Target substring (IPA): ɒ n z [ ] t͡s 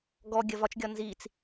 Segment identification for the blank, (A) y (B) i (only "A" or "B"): B